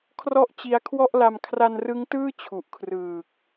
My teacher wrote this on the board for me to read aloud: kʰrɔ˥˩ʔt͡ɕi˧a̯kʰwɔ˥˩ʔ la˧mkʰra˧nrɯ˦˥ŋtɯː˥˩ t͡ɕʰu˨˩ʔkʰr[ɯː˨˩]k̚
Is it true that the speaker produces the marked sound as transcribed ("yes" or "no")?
yes